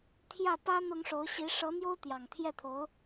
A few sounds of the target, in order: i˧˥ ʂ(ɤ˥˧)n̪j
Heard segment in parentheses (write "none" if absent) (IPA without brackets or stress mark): ɤ˧˥